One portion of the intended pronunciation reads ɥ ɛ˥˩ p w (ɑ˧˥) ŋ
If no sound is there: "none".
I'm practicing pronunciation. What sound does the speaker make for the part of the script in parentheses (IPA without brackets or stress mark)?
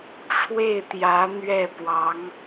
ɑ˧˥